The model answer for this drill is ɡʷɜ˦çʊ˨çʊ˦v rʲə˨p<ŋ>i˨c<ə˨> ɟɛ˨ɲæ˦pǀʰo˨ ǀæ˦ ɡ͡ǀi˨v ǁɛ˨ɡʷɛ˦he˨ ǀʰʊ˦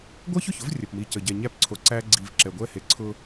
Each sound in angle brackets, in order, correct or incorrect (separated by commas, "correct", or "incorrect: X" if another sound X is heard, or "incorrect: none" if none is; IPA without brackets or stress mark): incorrect: m, correct